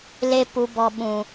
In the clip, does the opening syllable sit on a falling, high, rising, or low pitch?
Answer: low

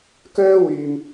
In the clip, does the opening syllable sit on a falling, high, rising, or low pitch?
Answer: high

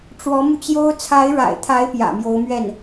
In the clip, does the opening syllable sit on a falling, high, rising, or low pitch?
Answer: rising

